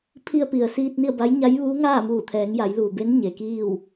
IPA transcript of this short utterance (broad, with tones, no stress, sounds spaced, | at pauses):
pʰ i˧ ə̯ p i˩ ə̯ s iː˧ t̚ n i˥˨ ə̯ b a˧˥ j ɲ a˧˥ j ʋ uː˧˥ ŋ aː˥˨ m uː˧˩ t̪ʰ ɛː˩˧ ŋ j a˩˧ j l uː˩ b e˧˥ n ɲ e˩ k iː˥˨ w